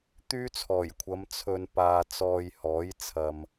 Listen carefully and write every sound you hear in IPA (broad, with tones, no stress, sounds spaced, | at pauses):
t̪ yː˥ t͡sʰ ɔː˨˩ j kʷʰ ɐ˨˧ m t͡sʰ ɵ˨ n p aː˨ t͡s ɔː˨ j h ɔː˨˥ j t͡sʰ ɐ˨ m